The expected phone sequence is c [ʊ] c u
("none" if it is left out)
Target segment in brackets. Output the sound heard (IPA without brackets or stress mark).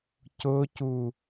ʊ